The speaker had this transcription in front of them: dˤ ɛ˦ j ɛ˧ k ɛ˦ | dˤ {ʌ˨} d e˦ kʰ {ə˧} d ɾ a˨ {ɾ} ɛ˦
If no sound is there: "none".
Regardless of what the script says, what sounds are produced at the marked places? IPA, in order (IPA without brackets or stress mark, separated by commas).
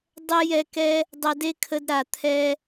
ʌ˧, ə˧, t̪ʰ